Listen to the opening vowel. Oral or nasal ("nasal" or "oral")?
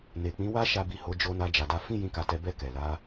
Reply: oral